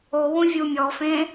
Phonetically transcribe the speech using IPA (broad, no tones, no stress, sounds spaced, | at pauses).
o w ũ vʲ u mʲ ɔ f ẽ